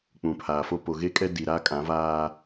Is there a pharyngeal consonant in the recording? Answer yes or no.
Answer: no